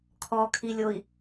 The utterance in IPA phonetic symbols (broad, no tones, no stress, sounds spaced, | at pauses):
kʰ ɔ kʰ i lʲ o i̯